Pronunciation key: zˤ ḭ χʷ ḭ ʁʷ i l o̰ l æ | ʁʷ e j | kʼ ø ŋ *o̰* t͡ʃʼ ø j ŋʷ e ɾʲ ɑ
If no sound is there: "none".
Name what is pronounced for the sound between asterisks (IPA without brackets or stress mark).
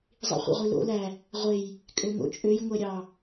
o̰